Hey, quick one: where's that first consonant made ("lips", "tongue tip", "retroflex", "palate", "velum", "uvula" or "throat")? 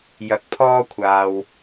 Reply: palate